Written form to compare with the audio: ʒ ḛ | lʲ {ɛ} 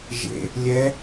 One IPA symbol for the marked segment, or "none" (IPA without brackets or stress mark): ɛ